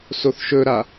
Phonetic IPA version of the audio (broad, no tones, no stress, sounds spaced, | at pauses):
s o θ ʃ ɵ ɾ a